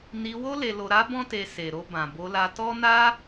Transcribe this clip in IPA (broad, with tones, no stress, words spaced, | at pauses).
ni˧wo˦ le˧lo˧ ɾa˦bɔ̃˦te˧ se˨ɾo˧bã˨ bo˧la˧tɔ˦ na˦